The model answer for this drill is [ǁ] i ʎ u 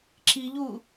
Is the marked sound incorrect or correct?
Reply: correct